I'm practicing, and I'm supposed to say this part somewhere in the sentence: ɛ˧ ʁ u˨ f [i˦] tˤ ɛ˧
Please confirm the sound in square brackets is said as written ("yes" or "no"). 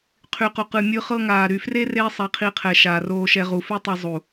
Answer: no